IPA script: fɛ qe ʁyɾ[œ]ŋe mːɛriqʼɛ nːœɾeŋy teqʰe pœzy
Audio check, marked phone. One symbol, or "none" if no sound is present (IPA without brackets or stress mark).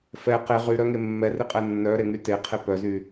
œ